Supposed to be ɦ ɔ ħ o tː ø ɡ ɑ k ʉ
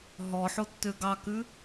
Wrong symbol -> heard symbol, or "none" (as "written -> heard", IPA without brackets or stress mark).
none